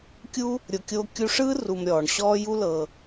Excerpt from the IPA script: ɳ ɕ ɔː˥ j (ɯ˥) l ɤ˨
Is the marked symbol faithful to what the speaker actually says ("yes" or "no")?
no